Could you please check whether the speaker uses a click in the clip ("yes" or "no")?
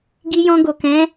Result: no